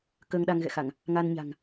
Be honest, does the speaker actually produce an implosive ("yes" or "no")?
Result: yes